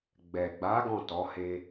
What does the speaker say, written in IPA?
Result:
ɡ͡b ɛ˨ ɡ͡b a˨˦ ɡ ɔ̃˦˨ t ɔ˨˦ h e˦

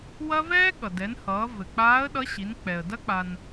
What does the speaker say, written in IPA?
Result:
w ɐ˥ v ɛː˥ ɠ ʌ˩ d ɛ˩˧ n h ʌː˩˧ v ɘ˩ k͡p aː˧˥ ə̯ ɗ ʌ˧˥ ɕ i˩˧ n k͡p ɛ˩ ə̯ d ɐ˥ k͡p a˧ n

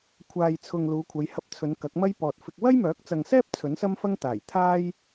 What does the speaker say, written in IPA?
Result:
kʷʰ aː˨ j t͡sʰ ʊ˨ ŋ l uː˨˧ kʷʰ ɐ˨˧ j h ɐ˧ p̚ t͡sʰ ɵ˨˧ n k ɐ˨˥ k̚ m ɐ˥ j p ɔː˨ t̚ f ɪ˧ k̚ w ɐ˥ j m œː˨˥ k̚ t͡s ɐ˨ ŋ s ɛː˥ p̚ t͡sʰ ɵ˨˥ n s ɐ˥ m f ɐ˥ ŋ t̪ aː˨˩ j t̪ʰ aː˥ j

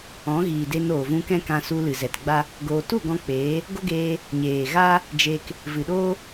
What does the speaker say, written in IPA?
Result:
ɔ̃˨˦ ɣ iː˨ d e˧ n oː˨ v ũ˧ k ɛ̃˦ k ã˧ s u˧ l ɨ˨ z ɛ˨ t ɡ͡b a˦ | ɡ oː˧ t u˦˨ ɡ ɔ̃˧ k͡p eː˨˦ | ɡ o˦ ɡ eː˧ | ɲ eː˨ ɣ a˦ | d͡ʒ e˧ k | v ɨ˨ ɗ oː˦

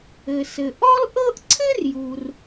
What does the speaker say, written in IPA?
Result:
ɘ˩ s ɘ˩ ʔ ɔ˥ l ʔ ɤ˥ ʔ ǀʰ ɘ˥ r j u˩ r

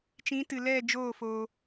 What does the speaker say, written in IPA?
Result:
t͡ʃ ĩ˨˦ t ɨ˨ l ɛ˦˨ d͡ʒ oː˦˨ f oː˧

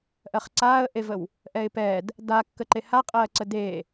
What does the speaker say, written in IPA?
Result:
ʔ ɜ χ ǀ aː ə̯ ʔ e v ə w | ʔ ɛ ɪ̯ p ɛ d | d a kː ə ǃ e h a qʼ ɜː ǀ ə d e

